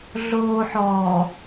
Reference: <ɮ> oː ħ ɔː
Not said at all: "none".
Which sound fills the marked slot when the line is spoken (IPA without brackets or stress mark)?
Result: ɮ